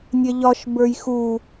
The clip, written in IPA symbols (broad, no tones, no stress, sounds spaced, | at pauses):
nʲ ɛ ʎ ɒ ʃ b ə˞ j x u